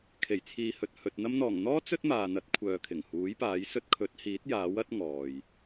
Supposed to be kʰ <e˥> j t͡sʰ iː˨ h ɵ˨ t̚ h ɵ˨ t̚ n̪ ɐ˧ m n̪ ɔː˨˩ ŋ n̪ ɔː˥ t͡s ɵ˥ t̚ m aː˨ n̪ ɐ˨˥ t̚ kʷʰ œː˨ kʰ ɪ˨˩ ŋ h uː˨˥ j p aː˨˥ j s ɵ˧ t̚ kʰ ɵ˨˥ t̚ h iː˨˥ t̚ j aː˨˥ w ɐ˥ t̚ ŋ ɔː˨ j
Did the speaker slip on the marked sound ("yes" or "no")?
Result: yes